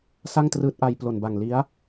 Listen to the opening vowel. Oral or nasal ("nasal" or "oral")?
oral